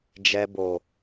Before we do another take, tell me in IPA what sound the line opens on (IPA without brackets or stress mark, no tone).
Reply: d͡ʒ